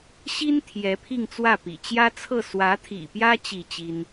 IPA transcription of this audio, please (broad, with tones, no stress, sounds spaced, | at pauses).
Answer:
ɕ i˥ n t̪ʰ j ɛ˧˥ pʰ i˥˧ ŋ t͡s w ä˥˩ p ḭ˨˩ t͡ɕ j ä˥ t͡sʰ ɤ˥˩ s w ä˧˥ t̪ʰ ḭ˨˩ p j ä˥ t͡ɕ i˥˩ t͡ɕ i˥ n